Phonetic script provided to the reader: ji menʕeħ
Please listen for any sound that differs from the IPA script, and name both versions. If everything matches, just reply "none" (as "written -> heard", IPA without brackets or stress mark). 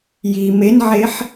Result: none